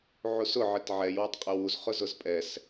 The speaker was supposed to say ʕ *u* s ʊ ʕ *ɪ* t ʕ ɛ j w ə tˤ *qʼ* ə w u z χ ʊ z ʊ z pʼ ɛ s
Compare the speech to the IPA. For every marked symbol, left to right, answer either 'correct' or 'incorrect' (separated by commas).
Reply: correct, correct, correct